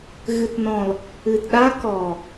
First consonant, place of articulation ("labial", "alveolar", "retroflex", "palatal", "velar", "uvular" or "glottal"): velar